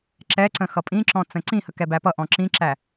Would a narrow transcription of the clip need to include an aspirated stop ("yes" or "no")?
no